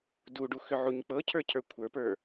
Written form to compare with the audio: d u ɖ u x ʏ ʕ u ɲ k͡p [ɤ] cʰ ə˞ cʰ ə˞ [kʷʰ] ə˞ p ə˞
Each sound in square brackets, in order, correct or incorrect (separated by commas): correct, correct